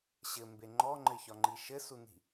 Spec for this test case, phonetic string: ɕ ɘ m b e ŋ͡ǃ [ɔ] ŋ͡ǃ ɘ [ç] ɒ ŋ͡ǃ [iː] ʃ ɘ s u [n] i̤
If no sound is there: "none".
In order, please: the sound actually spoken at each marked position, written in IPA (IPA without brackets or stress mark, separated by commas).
ɔ, ç, i, n